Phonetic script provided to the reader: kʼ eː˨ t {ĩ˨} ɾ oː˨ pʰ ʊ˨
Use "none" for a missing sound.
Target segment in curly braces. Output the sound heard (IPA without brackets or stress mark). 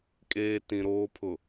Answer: ĩ˨